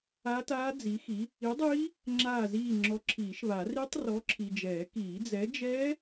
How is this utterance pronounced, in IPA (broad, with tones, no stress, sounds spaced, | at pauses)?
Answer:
a˦˥ t aː˦˥ d͡z i˨˥ x i˨˥ | i˨˥ dˤ iː˦˥ | ŋ͡ǁ aː˦˨ z iː˦˨ ŋ͡ǁ ɔ˨˥ ǁʰ iː˨˩˦ ʃ β a˨˩˦ r i˦˥ tˤ r ɔ˨˥ ǁʰ i˨ d͡ʒ ɛː˨˩˦ k iː˨˩˦ d͡z ɛ˨˥ d͡ʒ ɛː˦˥